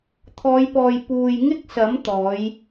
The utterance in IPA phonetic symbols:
t̪ʰ ɔː˨˧ j p ɔː˨ j p uː˨ j ŋ ɪ˥ k̚ s ɐ˨˥ m t̪ ɔː˨˥ j

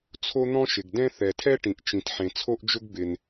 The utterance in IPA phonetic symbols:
t͡sʰ o˥ n̪ ɔ̃˥ ʃ ɪ˩ ɡ d ɛ̃˥ θ ɛ˩ tʰ ɛ˥ ʈ ĩ˩ ʔ t͡ʃ ĩ˩ t ħ ẽ˩ t͡sʰ o˥ ʔ d͡ʒ ʊ˥ ɡ b ɪ˩ n

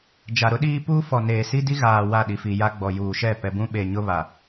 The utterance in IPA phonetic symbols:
d͡ʒ a˨ ɾ ʊ˦ ɗ iː˦ p uː˦ f ɔ˨ n eː˨ s i˦ d i˦ ɣ aː˨ w a˦˨ ɗ i˨ f i˨ j a˦ ɡ͡b ɔ˨ j uː˨ ʃ ɛ˦˨ p ɛ˨ b ũ˦ ɓ e˨ ɲ ʊ˦ β a˨

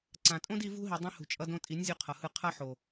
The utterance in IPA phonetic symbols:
ǀ ã˨ tʼ õ˦ d i˧ v ṳ˦ ɦ i˨ dˤ ĩ˧ h ṳ˨ t͡ʃʼ ʌ˧ d õ˧ tʼ i˨˦ nʲ zʲ u˧ qʰ ʌ˨ h ɯ˧ qʰ ʌ˦ ħ o˨

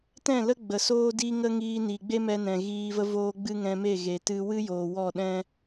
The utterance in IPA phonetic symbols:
t ɛ̃˦˨ l ə˦ ɡ͡b ə˨ s oː˦ d i˦ ŋ ə˦ ŋ iː˧ n i˨ ɡ͡b e˦ m ɛ˧ n ɛ̃˨ ɣ iː˧ v ə˦ v oː˦ ɡ͡b ɨ˦ ŋ ɛ̃˧ m e˦˨ ɣ e˨ t ɨ˧ w ɨ˦ j o˨ w ɔ˦˨ ɗ ɛ̃˦

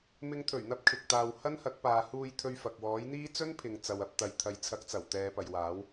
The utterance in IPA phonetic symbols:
m ɪ˨˧ ŋ t̪ʰ ɵ˨˩ ɥ n̪ ɐ˧ p̚ kʰ ɪ˨ k̚ t̪ aː˨ w h ɐ˥ n h ɐ˨˥ k̚ p aː˨ h uː˧ j t̪ʰ ɵ˧ ɥ f ɐ˨ k̚ w ɔː˨˥ j n̪ iː˥ t͡s ɵ˥ n pʰ ɪ˨ ŋ t͡s ɐ˨ w ɐ˧ p̚ t̪ ɐ˨˧ j t̪ʰ ɐ˨˧ j t͡sʰ ɐ˨˥ k̚ t͡s ɐ˨˩ w t̪ ɛː˨˧ p ɐ˨ j w aː˨˥ w

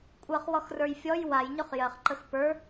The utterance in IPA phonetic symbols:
kʷʼ ɜ χ w ɔ x r ə˞ j fʲ ɔ j w a j ɲ ʊ χ j ɜ χ ǃ ə x p ə˞

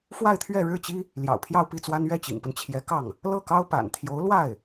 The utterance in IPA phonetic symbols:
f w a˥˧ ɪ̯ t̪ʰ ɥ ɛ˥˧ ɻ ɻ̩˥˩ t͡ɕ i˥ | l j ɑ̰˨˩ ʊ̯ pʰ j ɑ˥˧ ʊ̯ p i˥˩ t͡s w a˥ n ɥ ɛ˥˩ t͡ɕ ḭ˨˩ ŋ p ə˦ n t͡ɕʰ j ɛ˧˥ k ɑ˥˩ ŋ | l ɤ˥˩ k ɑ˥ ʊ̯ p a̰˨˩ n t̪ʰ j o˧˥ ʊ̯ l w a˥˩ ɪ̯

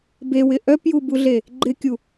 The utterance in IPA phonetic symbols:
b e w ɪ ʔ œ p j u b u ɮ e | ɡ͡ǃ ɪ kʲ u

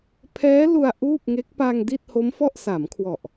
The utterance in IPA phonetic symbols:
pʰ ɛː˦˥ l u˧ a̯ ʔ uː˥˩ p̚ ŋ eː˦˥ k̚ p a˧ ŋ d i˥˩ t̚ h o˦˥ m f ɔ˥˩ ʔ s a˩˦ m kʰ w ɔ˨˩ ʔ

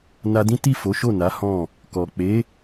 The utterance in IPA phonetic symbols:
n a˧ d ĩ˦ t i˦˨ f o˨˦ ʃ o˦˨ n a˨˦ h ɔ̃˦˨ | k ɔ˨ k͡p e˨˦

